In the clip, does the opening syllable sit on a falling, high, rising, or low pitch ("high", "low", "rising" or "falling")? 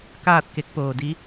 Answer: falling